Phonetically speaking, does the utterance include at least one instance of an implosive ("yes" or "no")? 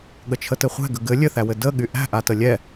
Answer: yes